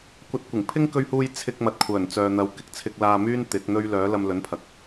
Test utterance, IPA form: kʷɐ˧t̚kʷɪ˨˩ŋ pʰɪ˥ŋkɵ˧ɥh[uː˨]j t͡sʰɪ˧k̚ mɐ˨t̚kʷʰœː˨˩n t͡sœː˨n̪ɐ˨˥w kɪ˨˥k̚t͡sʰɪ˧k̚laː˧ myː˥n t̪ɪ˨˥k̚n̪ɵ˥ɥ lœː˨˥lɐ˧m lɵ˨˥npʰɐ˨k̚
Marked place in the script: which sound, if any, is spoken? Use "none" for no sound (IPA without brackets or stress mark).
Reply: uː˧